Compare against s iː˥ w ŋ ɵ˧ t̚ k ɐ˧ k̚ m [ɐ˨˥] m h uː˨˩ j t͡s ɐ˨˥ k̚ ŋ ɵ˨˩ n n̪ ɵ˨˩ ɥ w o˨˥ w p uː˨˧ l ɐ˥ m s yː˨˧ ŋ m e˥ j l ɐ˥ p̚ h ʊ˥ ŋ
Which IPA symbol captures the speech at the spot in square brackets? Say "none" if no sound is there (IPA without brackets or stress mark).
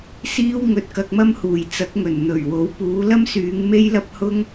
ɐ˥